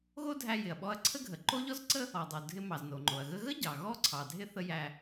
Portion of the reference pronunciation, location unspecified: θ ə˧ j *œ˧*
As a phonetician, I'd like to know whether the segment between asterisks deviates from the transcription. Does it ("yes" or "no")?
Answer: yes